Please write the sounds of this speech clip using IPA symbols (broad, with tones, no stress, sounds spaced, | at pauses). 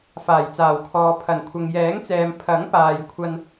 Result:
f aː˨˩ j t͡s aː˨˩ w kʰ ɔː˨ pʰ ɐ˨˩ n kʷʰ ɐ˨ ŋ j ɛː˨˥ ŋ t͡s ɛː˨ m pʰ ɐ˨˥ ŋ p aː˨ j kʷʰ ɐ˥ n